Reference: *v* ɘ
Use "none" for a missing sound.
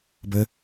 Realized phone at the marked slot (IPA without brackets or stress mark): b